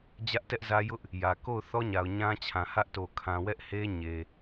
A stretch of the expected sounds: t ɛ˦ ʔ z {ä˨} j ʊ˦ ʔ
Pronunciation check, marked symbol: incorrect: ä˦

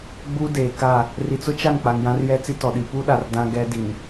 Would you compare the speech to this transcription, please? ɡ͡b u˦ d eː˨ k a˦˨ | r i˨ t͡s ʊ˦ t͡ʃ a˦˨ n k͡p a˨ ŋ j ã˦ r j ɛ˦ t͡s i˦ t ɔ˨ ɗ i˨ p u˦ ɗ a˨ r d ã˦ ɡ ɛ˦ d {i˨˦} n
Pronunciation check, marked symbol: incorrect: i˨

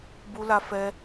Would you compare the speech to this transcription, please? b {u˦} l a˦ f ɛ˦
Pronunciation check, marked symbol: correct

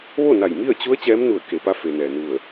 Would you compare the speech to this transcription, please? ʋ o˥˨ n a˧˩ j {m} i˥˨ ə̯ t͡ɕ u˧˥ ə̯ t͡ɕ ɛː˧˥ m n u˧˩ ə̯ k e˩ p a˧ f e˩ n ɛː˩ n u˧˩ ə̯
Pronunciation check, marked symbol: correct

